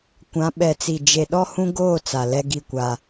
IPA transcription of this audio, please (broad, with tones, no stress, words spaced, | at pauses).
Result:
kʷã˨˦ɓɛ˨t͡si˨ d͡ʒe˨ɗɔ˦hũ˦ɡoː˦˨ t͡sa˨lɛ˦ɡi˦˨kʷa˦